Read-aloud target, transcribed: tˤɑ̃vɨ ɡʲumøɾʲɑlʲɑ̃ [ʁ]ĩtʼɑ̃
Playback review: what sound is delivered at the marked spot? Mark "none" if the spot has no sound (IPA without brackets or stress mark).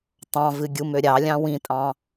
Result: w